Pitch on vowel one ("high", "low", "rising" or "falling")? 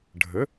rising